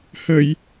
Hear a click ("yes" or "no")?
no